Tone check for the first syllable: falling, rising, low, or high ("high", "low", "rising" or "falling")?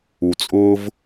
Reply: low